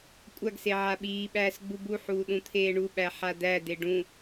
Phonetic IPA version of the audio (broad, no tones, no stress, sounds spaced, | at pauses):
kʷʼ a ɡ s e ʕ a ɓ iː ɓ æː s ɡ͡b u b u ħ uː ɗ ũ t̪ʰ eː ɳ u ɓ æ ħ a d̪ æ d̪ e ɖ ũ